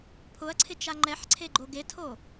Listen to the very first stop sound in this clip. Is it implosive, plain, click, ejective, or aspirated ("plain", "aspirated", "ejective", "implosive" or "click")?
aspirated